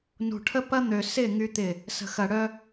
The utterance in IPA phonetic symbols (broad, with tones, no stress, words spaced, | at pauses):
nṳ˨ʈʰə˦pɐ˦ n̪ø˨ sɪ˦˨ ŋy˦t̪ɪ˦˨ | sə̤˨ xɐ˨ ɽœ˦